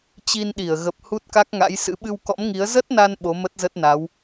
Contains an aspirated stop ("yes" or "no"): no